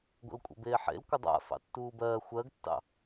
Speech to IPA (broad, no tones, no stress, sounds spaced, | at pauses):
ɡʷ ə̰ l kʷʼ ə̰ b eː ħ ḛ l kʷ ə dˤ a̰ f ɑ̰ tː uː b ɜː xʷ ɜ ɡ tː ɑ̰